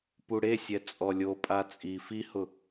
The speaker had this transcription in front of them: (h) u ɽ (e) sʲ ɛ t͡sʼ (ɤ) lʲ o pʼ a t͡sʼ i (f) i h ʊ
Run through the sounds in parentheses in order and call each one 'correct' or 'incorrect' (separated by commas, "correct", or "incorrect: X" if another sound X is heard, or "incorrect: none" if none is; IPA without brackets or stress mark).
incorrect: p, correct, incorrect: ɔ, correct